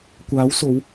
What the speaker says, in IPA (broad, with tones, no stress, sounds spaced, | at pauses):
kʷ aː˨˧ w s o˨˧ w